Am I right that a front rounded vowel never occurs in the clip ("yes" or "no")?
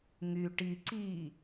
no